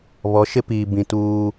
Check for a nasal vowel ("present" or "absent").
present